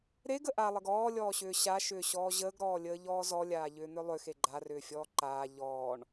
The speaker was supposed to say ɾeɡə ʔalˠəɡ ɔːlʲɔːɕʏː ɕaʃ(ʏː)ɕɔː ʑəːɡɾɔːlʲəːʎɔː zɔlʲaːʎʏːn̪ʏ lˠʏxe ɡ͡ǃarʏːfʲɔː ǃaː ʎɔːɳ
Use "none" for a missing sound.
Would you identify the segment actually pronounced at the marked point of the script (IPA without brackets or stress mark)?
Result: ʏː